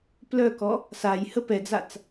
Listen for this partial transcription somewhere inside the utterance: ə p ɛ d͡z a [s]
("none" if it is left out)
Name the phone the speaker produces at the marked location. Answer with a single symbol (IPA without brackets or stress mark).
t͡s